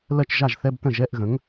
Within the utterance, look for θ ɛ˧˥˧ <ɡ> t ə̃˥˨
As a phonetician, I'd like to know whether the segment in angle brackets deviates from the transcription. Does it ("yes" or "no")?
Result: yes